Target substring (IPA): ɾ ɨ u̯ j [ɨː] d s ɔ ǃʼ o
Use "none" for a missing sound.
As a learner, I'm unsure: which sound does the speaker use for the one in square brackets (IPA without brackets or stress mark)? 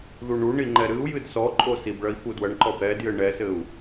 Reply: ɨ